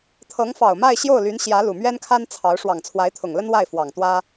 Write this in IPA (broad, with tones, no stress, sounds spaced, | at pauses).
t̪ʰ ɤ˧˥ ŋ f ɑ˨˩ ʊ̯ m a˥˧ ɪ̯ ɕ j o˥˩ ʊ̯ l y˧˥ n ɕ j ä˧˥ l u˨˩ m ɥ ɛ˥ n kʰ a˥ n t͡sʰ ɑ˧˥ ʊ̯ ʂ w ɑ˨˩ ŋ t͡sʰ w a˧˥ ɪ̯ t̪ʰ ʊ˨˩ ŋ l ə˥ n w a˥˩ ɪ̯ f w ɑ˨˩ ŋ t̪ w ä˥